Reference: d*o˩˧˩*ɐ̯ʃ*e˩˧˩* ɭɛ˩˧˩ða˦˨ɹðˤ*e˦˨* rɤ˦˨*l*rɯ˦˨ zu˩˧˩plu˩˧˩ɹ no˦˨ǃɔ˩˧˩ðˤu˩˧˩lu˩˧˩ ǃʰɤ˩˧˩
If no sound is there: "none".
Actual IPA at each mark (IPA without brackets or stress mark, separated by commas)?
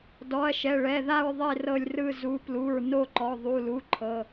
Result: ɔ˩˧˩, ɛ˩˧˩, e˦˨, lʲ